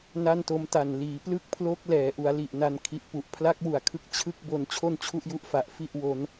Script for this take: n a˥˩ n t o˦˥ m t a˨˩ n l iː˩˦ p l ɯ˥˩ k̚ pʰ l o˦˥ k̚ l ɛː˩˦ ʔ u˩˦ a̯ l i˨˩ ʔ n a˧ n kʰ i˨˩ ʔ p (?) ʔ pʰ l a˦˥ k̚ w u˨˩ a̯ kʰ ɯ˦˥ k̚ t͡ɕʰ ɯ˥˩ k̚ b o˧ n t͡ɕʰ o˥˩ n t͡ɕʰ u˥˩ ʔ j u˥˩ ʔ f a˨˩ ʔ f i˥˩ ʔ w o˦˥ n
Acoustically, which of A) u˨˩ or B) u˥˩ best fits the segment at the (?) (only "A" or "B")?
A